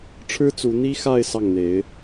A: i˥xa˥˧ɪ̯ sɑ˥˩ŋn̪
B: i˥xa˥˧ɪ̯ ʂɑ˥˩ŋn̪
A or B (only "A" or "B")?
A